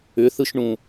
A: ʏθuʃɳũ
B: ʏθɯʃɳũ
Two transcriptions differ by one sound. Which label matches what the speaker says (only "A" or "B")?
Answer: B